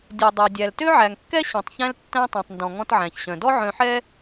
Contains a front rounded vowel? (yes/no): yes